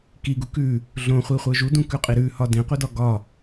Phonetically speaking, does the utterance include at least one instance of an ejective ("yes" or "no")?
yes